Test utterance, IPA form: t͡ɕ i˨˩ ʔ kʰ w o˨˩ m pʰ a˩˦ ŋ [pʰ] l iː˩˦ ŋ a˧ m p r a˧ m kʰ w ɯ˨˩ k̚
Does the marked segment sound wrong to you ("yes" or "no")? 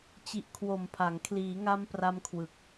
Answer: yes